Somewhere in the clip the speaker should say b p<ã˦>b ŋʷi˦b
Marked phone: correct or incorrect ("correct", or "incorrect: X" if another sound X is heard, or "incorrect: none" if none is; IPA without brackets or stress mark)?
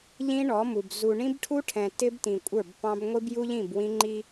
incorrect: ɑ̃˦